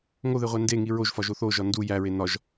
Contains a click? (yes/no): no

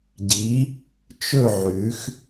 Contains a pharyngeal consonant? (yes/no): yes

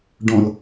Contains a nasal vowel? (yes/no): yes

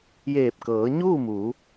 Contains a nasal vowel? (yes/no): no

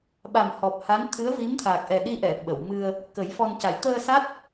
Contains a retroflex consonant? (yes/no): no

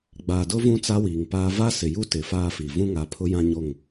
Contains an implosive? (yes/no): no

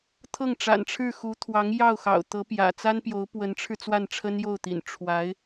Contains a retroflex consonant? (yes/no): yes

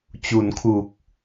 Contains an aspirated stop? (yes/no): yes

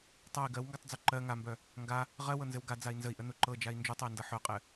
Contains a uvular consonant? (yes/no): yes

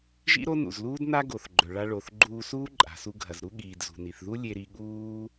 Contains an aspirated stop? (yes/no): no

